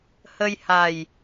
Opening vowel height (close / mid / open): mid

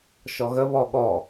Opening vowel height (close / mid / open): mid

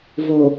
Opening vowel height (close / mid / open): mid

